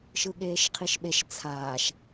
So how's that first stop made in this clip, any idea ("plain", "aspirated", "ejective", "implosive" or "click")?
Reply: implosive